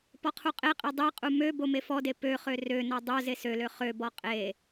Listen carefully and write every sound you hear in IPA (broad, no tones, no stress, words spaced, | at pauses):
pɔqʰuqʼeqʼe dˤeqʼu mø bomefɔde pøχø rønɔ dˤo zesølø χøbɔ qʼe